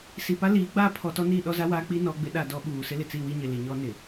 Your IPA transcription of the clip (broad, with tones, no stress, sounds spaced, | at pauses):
s i˨ p a˦ l iː˨˦ ɡ͡b aː˦˨ pʰ ɔ˨ t ɔ˦ n i˦˨ ɗ ɔ˦ z a˦ w aː˦ k͡p i˦ n ɔ˦ ɡ͡b ɪ˦ ɗ a˦˨ d ɔ˦ ɓ uː˨ s ɪ˦ l ɪ˨ t͡s i˦˨ w i˦ ɲ ɪ˨ l i˨ ɲ ɔ˦ n ɪ˨